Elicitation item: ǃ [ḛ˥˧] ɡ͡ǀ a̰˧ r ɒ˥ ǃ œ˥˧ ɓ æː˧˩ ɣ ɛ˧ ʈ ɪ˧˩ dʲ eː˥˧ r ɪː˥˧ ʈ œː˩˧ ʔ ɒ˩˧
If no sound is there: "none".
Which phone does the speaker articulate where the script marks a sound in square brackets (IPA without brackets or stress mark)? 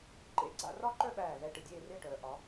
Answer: ḛ˧˩